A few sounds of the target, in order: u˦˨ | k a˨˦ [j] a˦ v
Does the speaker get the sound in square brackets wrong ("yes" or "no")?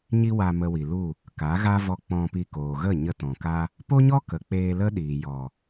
yes